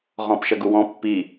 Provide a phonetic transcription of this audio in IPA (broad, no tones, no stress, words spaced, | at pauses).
ʁɔ̃pʃɐɡuwɔ̃ pːi